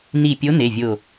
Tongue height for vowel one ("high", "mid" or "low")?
high